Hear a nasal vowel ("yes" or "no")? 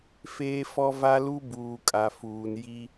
no